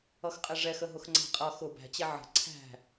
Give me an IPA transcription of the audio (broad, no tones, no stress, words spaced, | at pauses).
ʌxqʼɪʐɛx əɦʊxŋ͡ǀæ̤qʼʌ xʊ bæ̤t͡ɕɛ ʕə̤ ǀʰæ̤